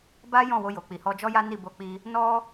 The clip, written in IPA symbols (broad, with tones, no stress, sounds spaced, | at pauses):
b a˦ j ɔ̃˦˨ w o˧ j o˨ k͡p i˨ h ɔ˧ d͡ʒ ɔ˦ j a˦ n i˦˨ b o˧ k͡p i˧ | n ɔ˦